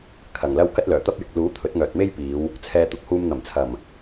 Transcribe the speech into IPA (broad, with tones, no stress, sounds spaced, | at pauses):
kʰ ɐ˨˩ ŋ l ɐ˥ w k ɐ˥ t̚ l œː˨˩ t̪ ɐ˥ p̚ j ɪ˨ k̚ l uː˨˥ t̪ʰ ɵ˨˥ t̚ ŋ œː˨ t̚ m e˥ j p iː˨˧ w | t͡sʰ ɛː˨ t̪ ʊ˨ k̚ h uː˧ m n̪ ɐ˨˩ m t͡sʰ ɐ˨˩ m